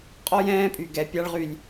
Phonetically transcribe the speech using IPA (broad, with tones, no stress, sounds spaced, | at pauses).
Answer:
qʼ ɔ˦ j ɛ̃ː˦ pʼ y˨ ɡ ɛ˧ pʲ a˦ ɭ ʁ y˧ lʲ